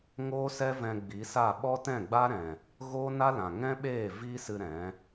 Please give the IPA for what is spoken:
ŋ oː˦ s ɛ˦ v ɛ̃˧ ɡ͡b i˨˦ s a˦˨ ɓ ɔ˦ t ɛ̃˦˨ ɡ͡b a˦ ɾ ɛ̃˨ | ɣ oː˦ n a˦ l ã˨ ŋ ɛ̃˦ ɓ eː˦˨ v iː˦ s ɨ˧ ɾ ɛ̃˨˦

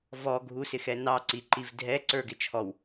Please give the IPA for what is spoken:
v ɔ ɡʱ u s ɪ x ɛ n ɑ ǀ i ǃ i v dʱ ɛ ǀ ə˞ ɡ ɪ t͡ʃʰ ɔ w

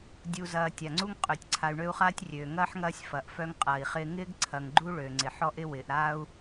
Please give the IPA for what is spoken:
dʲ u˨ z ɐː˨ tʲ a˩ ŋ͡ǀ u˥ ŋ qʼ ø˨ tʲ ǀʰ a˨ y̯ ɳ ø˦ u̯ χ aː˥ tʲ rʲ øː˩ ŋ ɐː˥ ħ ŋ ɐː˦ sʲ f ɐ˩ ʔ f œ˦ ŋ qʼ ɐː˩ i̯ χ ɪː˦ ŋ ɪː˥ ɡ ǀʰ ɐ˨ ŋ ɡ͡ǃ u˥ ɭ ø˩ ŋ͡ǀ ɪ˩ ħ ɔ˦ ʔ ɪ˦ w ɪː˩ ʔ ɾ aː˦ u̯

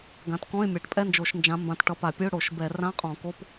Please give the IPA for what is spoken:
ɡ ã˨˦ t k ɔ̃˧˥˧ ɪ̯ mʲ a˨˦ ʈ pʼ ɛ˧˥˧ n d͡ʒ o˧˩˧ ʃ n d͡ʒ ã˨˦ m b ã˨˦ t ʈ ʌ˨˦ p a˧˩˧ pʲ ɨ˧˥˧ ʊ̯ ɽ o˧˩˧ ʃ b ɛ˧˩˧ r ã˧˥˧ qʼ ɔ̃˧˩˧ k o˧˥˧ p

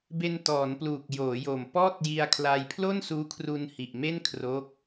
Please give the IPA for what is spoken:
b e˧ n t ɔː˩˦ n p l uː˨˩ k̚ j oː˩˦ j o˨˩ m p ɔː˥˩ t̚ j i˧ a̯ kʰ l a˧ j pʰ l o˥˩ n s uː˦˥ kʰ r u˧ n h i˨˩ ʔ m e˥˩ n kʰ r o˦˥ k̚

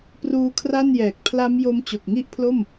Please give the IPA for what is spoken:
p r uː˦˥ kʰ r a˥˩ n j ɛː˨˩ k̚ pʰ l a˦˥ m j o˦˥ m t͡ɕ o˨˩ k̚ ŋ i˦˥ ʔ pʰ l o˥˩ m

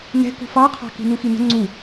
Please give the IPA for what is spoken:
n ɛ̤ k ṳ f ɑ qʰ ɑ̤ k i̤ n u x i n ə̤ ŋ͡ǀ u

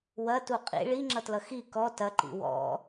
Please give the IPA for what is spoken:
w ɐ t u qʼ ḭ ɭ i ŋ͡ǁ ʌ t l ʌ x i k ɔ t ɐ ǃ ḭ w ɔ̰

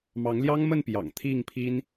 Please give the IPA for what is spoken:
m ɑ˨˦ ŋ l j ɑ˦ ŋ m ə˥˨ n p j ɑ̰˨˩ ŋ t̪ʰ i˥˨ ŋ pʰ i˦ n

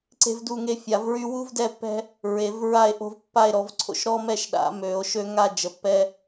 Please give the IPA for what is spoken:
ǀ e̤˦ v d u˦˨ ŋ e˦ fʲ a˨˩˦ v ɹ y˦ w u˦ v d ɛ˦˨ pː ɛ̤˦ | ɹ e˨˩˦ v ɹ a˦˨ e̯ ʔ o̤˦ v pː a˦˨ e̯ ɾ ɔ˨˩˦ v ǀʰ o̰˦ ʃ ɾ ɔ˦ m ɛ˦˨ ʃ ɗ a̰˨˩˦ m ø˨˩˦ o̯ ʃ ø˦ ŋ a˦˨ d͡ʒ ə˨˩˦ pː ɛ˦

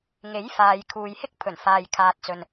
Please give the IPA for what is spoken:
ŋ e˨˥ j f aː˨ j kʰ uː˨ j h ɪ˥ k̚ pʰ ɵ˨˩ n f aː˨ j kʰ aː˨ t̚ t͡s ɵ˨ n

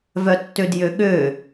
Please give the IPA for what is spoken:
v œ tː ø d j ø ɠ ø

